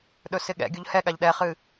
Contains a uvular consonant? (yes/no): yes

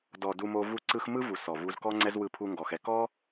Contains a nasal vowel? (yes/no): no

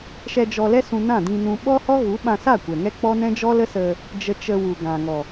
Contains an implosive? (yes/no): yes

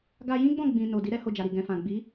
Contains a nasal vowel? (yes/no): yes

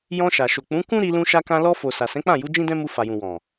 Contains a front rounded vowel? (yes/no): no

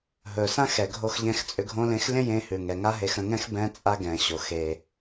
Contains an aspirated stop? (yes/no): no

